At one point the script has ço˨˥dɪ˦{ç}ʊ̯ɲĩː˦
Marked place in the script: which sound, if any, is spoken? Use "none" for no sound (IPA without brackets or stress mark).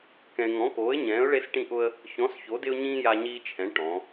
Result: none